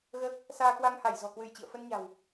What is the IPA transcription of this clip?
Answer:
ɣ əː˦˥ k̚ | s aː˧ k w a˧ ŋ h a˧˩ j z ɔ̤˨˩ k w ɨ˧˩ j t͡ɕ ḭ˧˨ ə̯ f ə˧ n ɲ a̤˨˩ w

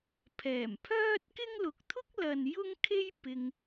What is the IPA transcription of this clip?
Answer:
pʰ ɛː˨˩ m pʰ œː˥ t̚ k ɪ˥ ŋ l ʊ˨˥ k̚ t̪ʰ ʊ˥ k̚ l ɐ˨ n j ʊ˥ ŋ kʰ e˥ j p ɪ˧ ŋ

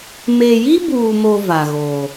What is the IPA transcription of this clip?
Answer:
m e˨ j i˦ b uː˨ m o˨ v a˨ ɣ oː˨

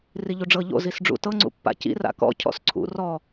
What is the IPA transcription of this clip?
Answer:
r i ʎ u ɖ͡ʐ ɤ ʎ o̰ z i s ɖ͡ʐ ṵ t ɤ ŋ͡ǀ ṵ pː a̰ c ḭ r a̰ k ɔ̰ cʰ ɔ̰ s ǀʰ ṵ r ɔ

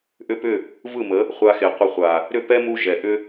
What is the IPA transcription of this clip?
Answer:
ʔ ʏ˧ p ʏ˦˨ | v ɯ˦˨ m ə˨˦ | χʷ a˧ x e˨ qʷ ə˧ χʷ a˨ | ɾ ʏ˦˨ p ɛ˦ m u˧ ʒ ɛ˨ ʔ ʏ˦

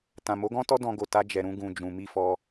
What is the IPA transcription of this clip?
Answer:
t ã˨ m o˨˦ ɡ ɔ̃˦ t ɔ˦ d ɔ̃˧ ɡ o˨ t a˧ d͡ʒ ɛ˨ ɾ ũ˧ ɡ ũ˨ d͡ʒ ũ˨ m i˧ f ɔ˧

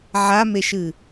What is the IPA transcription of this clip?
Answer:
ʕ a m e ʃ ɨ

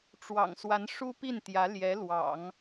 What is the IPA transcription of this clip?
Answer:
ʈ͡ʂ w ɑ̰˨˩ ŋ s w a˧˥ n ʂ u˥ p i˥˩ n t̪ j ä˧˥ l j ɛ˧˥ l w ɑ̰˨˩˦ ŋ

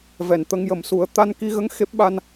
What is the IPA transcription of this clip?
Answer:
v ɛ˨˩˨ n t̪ ə˧ ŋ j ə˨˩˦ m s u˨˩˦ ə̯ t̪ a˧ n k i˧ ɣ ə˧˥ ŋ x e˦˥ p̚ ɓ a˧ n

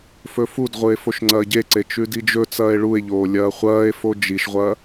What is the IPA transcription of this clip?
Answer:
f ɵ f u d ʁʷ ɨ e̯ f o ʃ ŋ͡ǀ ɐː ɟ e ǀ e t͡ʃ ʉ d i d͡ʒ ɵ t͡s ɐː e̯ ɭ u e̯ ʎ oː lʲ ɐː χʷ ɐː e̯ f o d͡ʒ i ʃ ʁʷ ɐː

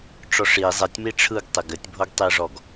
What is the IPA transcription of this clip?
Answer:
ʈ͡ʂ ɔ ʂ i zˤ e tʲ m i ʈ͡ʂʰ ɯ ɡ tˤ e ɡ ɘ tʲ bʱ o ɡ tˤ i ʐ ɔ ɡ

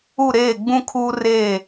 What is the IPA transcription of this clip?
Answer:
u˦˨ ɾ eː˦˨ ɡ͡b ũ˦ kʰ uː˦ r eː˦˨

